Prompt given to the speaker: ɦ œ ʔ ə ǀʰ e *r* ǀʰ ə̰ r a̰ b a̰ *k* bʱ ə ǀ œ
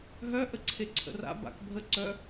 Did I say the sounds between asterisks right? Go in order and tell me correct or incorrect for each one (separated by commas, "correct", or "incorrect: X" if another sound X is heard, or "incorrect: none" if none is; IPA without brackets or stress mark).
incorrect: none, correct